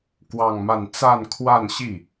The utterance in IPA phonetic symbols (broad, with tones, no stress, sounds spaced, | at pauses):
k w ɑ˥˧ ŋ m a˥˧ n t͡s a˥˧ n kʰ w a˥˧ n ɕ i˥˩